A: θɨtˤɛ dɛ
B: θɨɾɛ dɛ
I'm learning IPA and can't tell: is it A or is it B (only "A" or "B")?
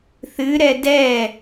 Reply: B